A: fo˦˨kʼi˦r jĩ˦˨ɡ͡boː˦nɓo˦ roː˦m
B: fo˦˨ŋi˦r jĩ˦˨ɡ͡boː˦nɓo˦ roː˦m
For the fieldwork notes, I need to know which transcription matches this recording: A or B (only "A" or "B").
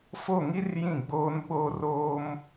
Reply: B